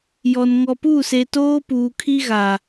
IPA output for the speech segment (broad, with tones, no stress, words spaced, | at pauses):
jɔ˨n ŋɔ˨pu˦˨se˨toː˦ puː˨kʰi˦ɣa˨